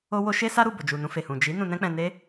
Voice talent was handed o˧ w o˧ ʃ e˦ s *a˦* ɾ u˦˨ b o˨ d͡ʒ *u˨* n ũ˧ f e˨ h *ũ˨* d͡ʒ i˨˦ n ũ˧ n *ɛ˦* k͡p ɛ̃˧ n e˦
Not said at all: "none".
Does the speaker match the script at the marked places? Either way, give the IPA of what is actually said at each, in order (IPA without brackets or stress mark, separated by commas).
a˦, u˨, ũ˨, ɛ̃˦